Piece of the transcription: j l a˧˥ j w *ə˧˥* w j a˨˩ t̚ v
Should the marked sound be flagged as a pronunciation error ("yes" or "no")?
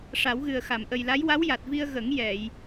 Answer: yes